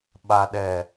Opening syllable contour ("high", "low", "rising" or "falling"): low